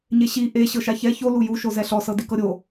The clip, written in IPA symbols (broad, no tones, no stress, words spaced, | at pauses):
ɲeɕi ʔe ɕɤʃaçɛ ço luju ʃozɛɬɔ sɤdikɤɾʲo